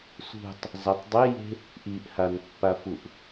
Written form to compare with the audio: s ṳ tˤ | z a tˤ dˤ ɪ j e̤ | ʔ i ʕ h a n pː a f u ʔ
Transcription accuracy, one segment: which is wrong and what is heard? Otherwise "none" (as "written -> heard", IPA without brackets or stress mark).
ʕ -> ʔ